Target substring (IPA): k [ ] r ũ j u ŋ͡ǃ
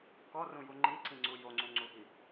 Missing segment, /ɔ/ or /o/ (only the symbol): ɔ